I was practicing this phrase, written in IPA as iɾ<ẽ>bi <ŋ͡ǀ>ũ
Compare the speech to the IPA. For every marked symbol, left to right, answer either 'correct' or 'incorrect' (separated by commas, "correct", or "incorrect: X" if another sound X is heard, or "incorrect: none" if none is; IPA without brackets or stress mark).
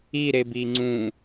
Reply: incorrect: e, correct